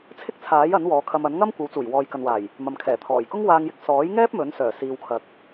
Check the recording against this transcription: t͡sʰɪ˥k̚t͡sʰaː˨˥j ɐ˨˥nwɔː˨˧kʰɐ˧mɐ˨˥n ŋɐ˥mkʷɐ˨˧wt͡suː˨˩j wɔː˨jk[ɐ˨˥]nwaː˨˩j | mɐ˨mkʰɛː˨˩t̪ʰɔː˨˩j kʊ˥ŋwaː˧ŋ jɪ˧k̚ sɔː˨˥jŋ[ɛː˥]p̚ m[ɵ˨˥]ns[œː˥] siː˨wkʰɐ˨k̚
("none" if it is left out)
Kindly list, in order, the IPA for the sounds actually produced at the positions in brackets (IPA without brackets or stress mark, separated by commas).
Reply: ɐ˨, ɛː˥, ɵ˨˥, œː˨˩